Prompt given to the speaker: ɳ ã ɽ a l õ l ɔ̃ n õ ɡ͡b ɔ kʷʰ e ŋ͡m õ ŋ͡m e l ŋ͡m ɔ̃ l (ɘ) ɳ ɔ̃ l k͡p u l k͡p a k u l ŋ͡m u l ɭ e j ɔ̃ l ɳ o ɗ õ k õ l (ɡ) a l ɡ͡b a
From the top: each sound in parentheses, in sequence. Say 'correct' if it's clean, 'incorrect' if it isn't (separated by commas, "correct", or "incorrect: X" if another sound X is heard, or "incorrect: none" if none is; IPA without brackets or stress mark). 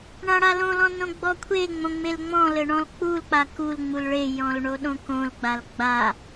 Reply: correct, incorrect: ɡ͡b